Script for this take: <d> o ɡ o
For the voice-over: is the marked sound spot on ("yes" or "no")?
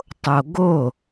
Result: no